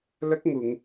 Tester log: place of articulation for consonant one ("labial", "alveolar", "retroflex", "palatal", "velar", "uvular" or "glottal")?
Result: alveolar